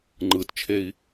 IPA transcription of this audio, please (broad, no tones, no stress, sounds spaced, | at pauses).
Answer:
ŋ͡ǃ ɯ t t͡ʃʰ e i̯